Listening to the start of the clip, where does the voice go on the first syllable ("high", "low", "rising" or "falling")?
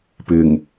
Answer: low